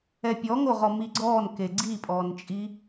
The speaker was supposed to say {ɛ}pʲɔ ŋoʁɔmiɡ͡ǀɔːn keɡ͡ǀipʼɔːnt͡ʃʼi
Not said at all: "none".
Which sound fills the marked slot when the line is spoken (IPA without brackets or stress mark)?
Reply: ɛ